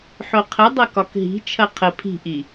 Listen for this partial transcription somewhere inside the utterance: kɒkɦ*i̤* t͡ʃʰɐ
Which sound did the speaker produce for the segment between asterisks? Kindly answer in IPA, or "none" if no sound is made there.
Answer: i̤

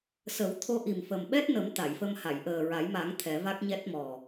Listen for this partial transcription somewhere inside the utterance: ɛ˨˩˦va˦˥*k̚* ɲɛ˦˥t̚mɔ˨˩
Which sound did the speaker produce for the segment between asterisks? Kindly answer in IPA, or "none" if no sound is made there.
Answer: k̚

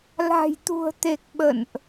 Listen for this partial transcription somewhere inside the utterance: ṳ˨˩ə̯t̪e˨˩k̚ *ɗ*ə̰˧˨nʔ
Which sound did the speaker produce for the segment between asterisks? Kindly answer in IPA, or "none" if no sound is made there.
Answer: ɓ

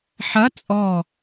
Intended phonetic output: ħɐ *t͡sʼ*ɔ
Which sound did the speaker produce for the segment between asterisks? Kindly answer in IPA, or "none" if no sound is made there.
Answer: t͡sʼ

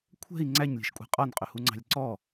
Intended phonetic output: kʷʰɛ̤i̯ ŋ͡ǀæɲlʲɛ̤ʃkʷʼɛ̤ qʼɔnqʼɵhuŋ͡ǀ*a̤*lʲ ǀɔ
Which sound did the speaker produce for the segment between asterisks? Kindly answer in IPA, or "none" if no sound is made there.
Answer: ɑ̤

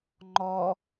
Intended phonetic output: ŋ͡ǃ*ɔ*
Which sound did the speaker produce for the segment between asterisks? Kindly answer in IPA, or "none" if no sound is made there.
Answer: ɔ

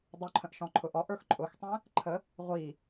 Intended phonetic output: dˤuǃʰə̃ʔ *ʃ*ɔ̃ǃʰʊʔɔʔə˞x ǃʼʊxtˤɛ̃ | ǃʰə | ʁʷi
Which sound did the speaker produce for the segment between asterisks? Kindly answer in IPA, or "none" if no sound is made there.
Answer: ʃ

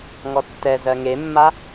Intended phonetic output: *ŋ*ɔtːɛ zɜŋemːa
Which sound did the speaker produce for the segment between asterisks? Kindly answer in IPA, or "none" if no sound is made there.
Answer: ŋ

